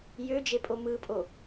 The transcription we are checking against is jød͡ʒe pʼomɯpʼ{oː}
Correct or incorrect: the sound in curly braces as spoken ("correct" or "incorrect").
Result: incorrect